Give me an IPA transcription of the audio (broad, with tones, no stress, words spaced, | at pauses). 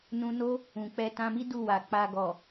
nũ˧no˦ | ũ˨k͡pɛ˧tã˧mi˦ du˦˨wa˨ k͡pa˨ɡɔ˨